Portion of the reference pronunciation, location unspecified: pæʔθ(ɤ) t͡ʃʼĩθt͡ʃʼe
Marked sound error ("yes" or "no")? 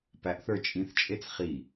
yes